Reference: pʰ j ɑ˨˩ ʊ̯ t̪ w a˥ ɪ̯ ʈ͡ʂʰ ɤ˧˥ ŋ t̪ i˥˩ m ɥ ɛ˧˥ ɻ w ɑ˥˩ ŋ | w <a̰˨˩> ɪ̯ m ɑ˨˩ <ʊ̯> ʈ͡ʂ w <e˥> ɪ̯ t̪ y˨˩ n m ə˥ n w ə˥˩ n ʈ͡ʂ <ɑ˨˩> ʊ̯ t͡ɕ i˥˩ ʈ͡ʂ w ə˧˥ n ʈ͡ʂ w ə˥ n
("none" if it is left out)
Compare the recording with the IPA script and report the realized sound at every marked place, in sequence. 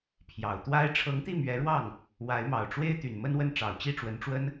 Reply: a˧˥, ʊ̯, e˥, ɑ˨˩

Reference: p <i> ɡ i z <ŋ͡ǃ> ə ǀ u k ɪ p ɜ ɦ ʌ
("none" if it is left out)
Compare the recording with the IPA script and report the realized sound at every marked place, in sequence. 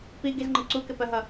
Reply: i, ŋ͡ǃ

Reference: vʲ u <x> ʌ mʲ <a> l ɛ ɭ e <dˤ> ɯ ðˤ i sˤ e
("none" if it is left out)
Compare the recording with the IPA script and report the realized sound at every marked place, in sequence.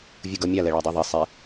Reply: ɡ, a, dˤ

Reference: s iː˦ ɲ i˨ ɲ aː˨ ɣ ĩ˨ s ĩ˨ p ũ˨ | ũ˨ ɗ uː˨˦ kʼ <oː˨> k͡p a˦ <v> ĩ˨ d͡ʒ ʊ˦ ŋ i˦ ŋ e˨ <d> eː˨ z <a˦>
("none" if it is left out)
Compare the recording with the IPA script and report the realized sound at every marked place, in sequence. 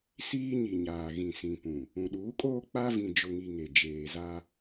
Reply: oː˦, v, d͡ʒ, a˦

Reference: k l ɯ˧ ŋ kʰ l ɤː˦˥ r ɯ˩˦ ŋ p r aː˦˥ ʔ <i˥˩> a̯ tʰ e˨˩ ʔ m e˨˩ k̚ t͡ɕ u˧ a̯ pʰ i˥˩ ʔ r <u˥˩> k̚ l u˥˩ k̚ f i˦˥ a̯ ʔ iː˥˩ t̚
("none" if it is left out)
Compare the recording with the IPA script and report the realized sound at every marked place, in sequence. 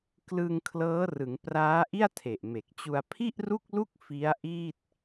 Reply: i˥˩, u˥˩

